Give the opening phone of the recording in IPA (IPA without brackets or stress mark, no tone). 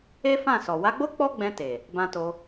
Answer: e